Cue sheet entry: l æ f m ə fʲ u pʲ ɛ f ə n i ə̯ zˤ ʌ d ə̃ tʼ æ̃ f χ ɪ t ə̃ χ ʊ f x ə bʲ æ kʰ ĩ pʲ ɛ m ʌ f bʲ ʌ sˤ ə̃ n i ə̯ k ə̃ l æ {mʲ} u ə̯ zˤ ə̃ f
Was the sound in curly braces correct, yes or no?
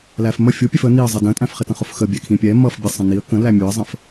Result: yes